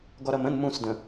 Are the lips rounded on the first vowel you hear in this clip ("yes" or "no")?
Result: yes